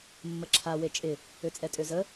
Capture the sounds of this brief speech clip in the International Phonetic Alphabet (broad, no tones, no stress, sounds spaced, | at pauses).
mː ə ǁʰ a w e t͡ʃʼ ɪ | ø t͡sʼ ɛ tʼ ø z ə